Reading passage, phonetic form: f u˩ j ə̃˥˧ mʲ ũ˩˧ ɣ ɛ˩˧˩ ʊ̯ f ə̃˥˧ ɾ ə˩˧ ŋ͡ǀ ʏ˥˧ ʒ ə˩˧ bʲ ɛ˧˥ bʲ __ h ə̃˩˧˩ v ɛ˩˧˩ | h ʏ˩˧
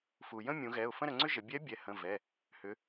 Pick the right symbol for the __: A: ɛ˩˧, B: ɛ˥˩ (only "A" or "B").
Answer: A